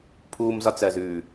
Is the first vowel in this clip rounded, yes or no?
yes